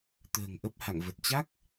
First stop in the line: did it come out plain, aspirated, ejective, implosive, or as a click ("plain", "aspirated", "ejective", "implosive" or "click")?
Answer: plain